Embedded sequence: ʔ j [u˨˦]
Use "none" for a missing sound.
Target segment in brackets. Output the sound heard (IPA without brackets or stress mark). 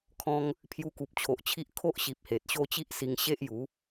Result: u˨˦